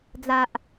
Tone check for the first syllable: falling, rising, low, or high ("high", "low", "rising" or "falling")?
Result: low